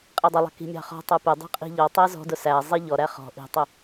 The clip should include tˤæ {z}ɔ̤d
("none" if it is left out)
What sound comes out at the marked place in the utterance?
z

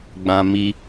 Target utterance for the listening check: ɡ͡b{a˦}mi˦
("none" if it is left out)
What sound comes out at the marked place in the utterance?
ã˦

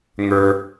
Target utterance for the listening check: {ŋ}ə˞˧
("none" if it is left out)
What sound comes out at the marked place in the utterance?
ŋ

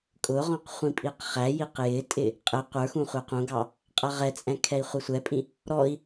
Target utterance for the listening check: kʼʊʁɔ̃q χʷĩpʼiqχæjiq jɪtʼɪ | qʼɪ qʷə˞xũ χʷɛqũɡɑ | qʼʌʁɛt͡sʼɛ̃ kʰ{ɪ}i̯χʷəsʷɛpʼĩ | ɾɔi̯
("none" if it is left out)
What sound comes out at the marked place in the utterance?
ɛ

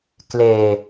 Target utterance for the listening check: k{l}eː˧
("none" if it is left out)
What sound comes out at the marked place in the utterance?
l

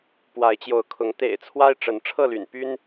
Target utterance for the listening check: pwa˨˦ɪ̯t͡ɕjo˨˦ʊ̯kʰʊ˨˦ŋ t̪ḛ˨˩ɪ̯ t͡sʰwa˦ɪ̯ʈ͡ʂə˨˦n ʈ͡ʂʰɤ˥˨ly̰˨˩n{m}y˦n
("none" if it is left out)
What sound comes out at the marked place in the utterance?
p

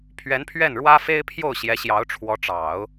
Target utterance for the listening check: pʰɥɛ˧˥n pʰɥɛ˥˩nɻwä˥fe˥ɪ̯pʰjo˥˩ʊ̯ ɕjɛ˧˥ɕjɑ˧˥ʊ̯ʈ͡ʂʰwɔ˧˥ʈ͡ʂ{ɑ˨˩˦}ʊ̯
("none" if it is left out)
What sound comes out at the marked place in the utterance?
ɑ˨˩˦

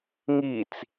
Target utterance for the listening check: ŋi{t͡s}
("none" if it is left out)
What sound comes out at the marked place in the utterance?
t͡s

